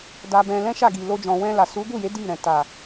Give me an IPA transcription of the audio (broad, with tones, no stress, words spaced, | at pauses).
da˧bɛ̃˧ lɛ̃˦ʃa˦˨ɡi˨ lo˧d͡ʒɔ̃˨wɛ̃˧ la˨su˨˦ɡu˦˨je˨˦ di˦˨ɾɛ̃˨ ta˨